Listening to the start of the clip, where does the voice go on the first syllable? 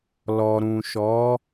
low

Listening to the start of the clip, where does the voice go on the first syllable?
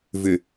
low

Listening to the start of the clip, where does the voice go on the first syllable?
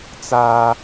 high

